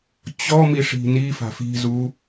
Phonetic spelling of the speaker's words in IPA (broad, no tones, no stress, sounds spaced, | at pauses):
t͡ɕ ɔ m i ʂ i̤ n i f a̤ f i̤ z u